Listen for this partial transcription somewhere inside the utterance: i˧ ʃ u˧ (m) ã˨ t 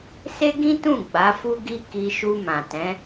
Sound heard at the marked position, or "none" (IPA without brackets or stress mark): m